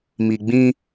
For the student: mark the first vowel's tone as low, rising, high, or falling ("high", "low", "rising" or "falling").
low